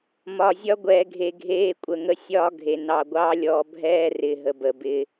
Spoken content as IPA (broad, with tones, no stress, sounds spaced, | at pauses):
m ɒ˨ zʲ ɒ˦ ɡʷ ɛː˨ ɡʱ e˨ ɡʱ eː˦ kʷʼ ə˨ ŋ ə˦ sʲ ɒː˦ ɡʱ e˨ n ɑ˨ ɡʷ ɑ˦ lʲ ɔ˨ bʱ ɛː˦ r ɪ˨ ɦ ə˨ b ə˨ b ɪ˦